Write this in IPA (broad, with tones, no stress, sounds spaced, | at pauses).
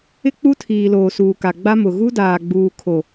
ɪ˦ k͡p u˦ tʰ iː˨ l oː˨ s uː˨ k a˨ ɡ͡b a˦ m ʊ˨ ɣ u˦ d aː˨ ɡ͡b uː˨ kʰ o˨